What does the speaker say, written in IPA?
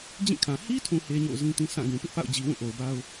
d͡ʑ ĩ˦˨ kʰ ã˨ h i˦ tʰ ũ˨ h e˦ ɲ o̰˦˨ ʊ̯ z ĩ˦ t ĩ˦ s ã˦˨ ɡ ũ˨ p ɪ˦ ʔ p a̰˦˨ ʊ̯ d͡ʑ i˨ w ũ˦˨ ʔ o˨ ʊ̯ b a˦ ʊ̯

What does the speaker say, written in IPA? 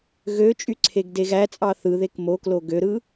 ɣ ø t͡ʃʼ y ǀʰ e ɡ d e ɣ æ t͡sʼ ɑ θ ɯ ð e k m o k l o ɡ ø ɾ ɯ

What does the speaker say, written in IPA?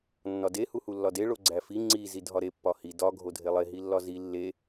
nː ɒ d e h u h u lː ɒ d e ɭ o ɡ͡ǀ æ f i ŋ͡ǀ i z i dʱ ɒ ɾ e pː ɒ h i d ɒ ɡʱ o dʱ e lˠ e ɦ i lː ɒ z i lː e

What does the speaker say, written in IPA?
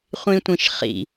χʷ ĩ tʷ ĩ ʃ χ ḭ

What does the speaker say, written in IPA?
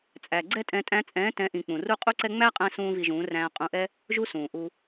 t͡sʼ æ˨ ɡ͡ǀ ɛ˦ tʼ ɛ̃˧ tʼ æ̃˧ t͡sʼ ɛ̃ː˨˦ t ɛ̃˨˦ ʔ ĩ˨ k͡p ũ˧ r u˦ qʼ u˦ ǀ ɛ˦ ŋ͡m æ˦ qʼ æ̃˧ s ũː˦ v i˧ ʒ ũː˨˦ r æ̃ː˧ qʼ ũ˧ ʔ ɛ˦ | ʒ u˦ s ũː˨ ʔ u˧

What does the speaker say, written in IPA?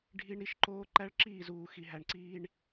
ɖʱ i˦ ɳ ɾ i˦ ʃ ǃ oː˦ ǃ æ˦ ɭ ǁ iː˦˨ z uː˨ x i˨ ɦ æ˨ ɳ ǀ iː˦ ɳ

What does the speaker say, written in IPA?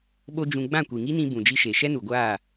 ɓ o˦ d͡ʒ ũ˧ ɡ͡b ã˦˨ kʷ i˨ ŋ i˦ n ĩ˧ b ũ˨ d͡ʒ i˧ ʃ e˨ ʃ ɛ˦ n u˨ ɡʷ aː˦˨

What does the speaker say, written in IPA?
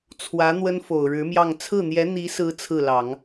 t͡sʰ w ä˧˥ n̪ w ə˥ n f o˨˩ ʊ̯ ɻ ɻ̩˧˥ m j ɑ˥˧ ŋ t͡sʰ ɹ̩˥˩ n̪ j ɛ˧˥ n̪ i˧˥ s ɹ̩˧˥ t͡sʰ ɹ̩˥˩ l ɑ˨˩˦ ŋ

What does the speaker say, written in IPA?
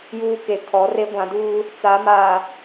j uː˦ k e˨ kʰ ɔ˨˦ r e˦ ɡʷ ã˨˦ d uː˦ | t͡s a˨˦ m aː˨

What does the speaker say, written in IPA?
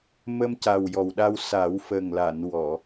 m ə˧ m c a˨˩ w j ɔ˨˩ w ɗ a˧ w s a˨˩˦ w f ə˨˩ ŋ l a˨˩˨ n w ɔ˨˩˨

